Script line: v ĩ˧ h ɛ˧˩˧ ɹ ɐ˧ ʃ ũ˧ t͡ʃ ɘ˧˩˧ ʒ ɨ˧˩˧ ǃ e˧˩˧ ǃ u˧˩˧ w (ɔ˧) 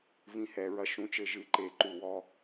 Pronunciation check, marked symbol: correct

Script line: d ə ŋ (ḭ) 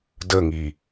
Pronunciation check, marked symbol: incorrect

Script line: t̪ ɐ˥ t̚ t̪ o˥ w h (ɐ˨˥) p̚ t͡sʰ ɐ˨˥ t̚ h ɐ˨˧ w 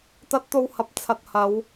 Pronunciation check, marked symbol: incorrect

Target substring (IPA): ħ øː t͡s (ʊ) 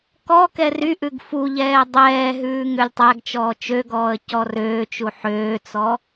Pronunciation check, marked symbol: incorrect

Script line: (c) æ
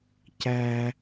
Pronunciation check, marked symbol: correct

